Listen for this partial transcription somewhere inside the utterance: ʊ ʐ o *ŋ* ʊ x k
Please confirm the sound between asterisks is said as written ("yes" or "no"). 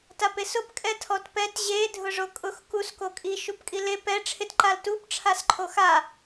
no